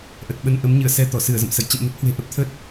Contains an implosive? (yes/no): yes